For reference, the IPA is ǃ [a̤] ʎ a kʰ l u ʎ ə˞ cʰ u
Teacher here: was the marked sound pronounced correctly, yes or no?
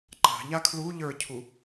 yes